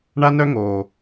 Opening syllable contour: high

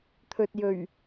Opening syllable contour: low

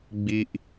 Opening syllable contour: high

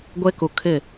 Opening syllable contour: high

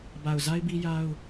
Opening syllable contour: low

